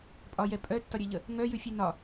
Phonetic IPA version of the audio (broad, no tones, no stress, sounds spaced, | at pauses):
pʼ ɒ j ɛ pʼ œ tː ɒ ɾʲ ɛ ʎ ə | ŋ œ j ʉ fʲ ʉ n ɒ